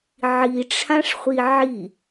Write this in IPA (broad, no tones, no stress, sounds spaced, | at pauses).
ʕ i ʈ͡ʂʰ ã ʂ χʷ i ʕ i